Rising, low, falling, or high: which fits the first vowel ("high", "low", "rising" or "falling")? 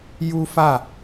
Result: high